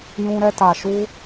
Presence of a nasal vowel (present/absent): present